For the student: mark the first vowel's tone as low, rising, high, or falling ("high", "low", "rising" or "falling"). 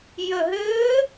low